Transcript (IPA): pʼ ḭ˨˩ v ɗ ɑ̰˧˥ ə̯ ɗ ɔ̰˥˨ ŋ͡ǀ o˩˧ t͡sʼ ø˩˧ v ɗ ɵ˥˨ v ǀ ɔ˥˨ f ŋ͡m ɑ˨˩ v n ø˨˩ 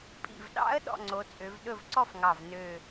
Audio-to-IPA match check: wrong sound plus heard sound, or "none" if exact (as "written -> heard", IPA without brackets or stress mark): ŋ͡m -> ŋ